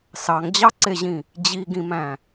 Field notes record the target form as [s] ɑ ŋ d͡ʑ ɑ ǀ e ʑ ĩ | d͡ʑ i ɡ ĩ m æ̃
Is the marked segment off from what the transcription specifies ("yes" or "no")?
no